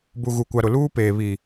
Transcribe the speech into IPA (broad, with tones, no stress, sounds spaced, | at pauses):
b u˨ ɣ u˨ kʷ a˨ ɾ ʊ˨ l uː˦ p eː˨ β i˨